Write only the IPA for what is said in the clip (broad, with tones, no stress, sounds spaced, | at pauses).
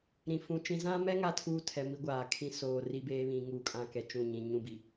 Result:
ɾ ĩ˨ f ũ˨ t͡ʃ ĩ˨ z ã˦ m ɛ˦ ŋ a˦ tʰ uː˦ tʰ ɛ˨ m i˦ ɡʷ aː˨ kʰ ĩ˦ s oː˨ r i˦ b eː˦ β ĩ˨ ŋ uː˨ kʼ ã˨ k ɛ˨ t͡ʃ ũ˦˨ ɲ ĩ˨ ɲ ũ˦˨ b i˨